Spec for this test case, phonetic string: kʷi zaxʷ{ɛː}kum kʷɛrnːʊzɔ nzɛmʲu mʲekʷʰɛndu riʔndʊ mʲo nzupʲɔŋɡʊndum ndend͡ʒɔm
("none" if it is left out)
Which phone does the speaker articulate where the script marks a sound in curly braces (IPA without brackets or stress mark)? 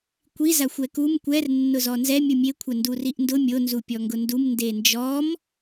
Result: ɛ